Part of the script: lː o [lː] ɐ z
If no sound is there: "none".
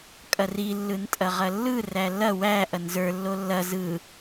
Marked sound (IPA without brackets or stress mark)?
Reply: lː